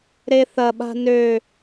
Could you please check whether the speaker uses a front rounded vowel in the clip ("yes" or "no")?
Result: yes